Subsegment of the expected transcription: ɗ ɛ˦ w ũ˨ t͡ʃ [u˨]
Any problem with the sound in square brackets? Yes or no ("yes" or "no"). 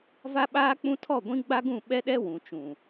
yes